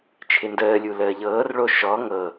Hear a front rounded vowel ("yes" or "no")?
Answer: no